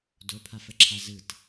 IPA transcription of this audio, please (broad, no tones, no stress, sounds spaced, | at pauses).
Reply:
d o pʰ a f ə ǁʰ a z ɯ t